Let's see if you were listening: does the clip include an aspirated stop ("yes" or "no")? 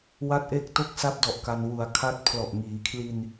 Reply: yes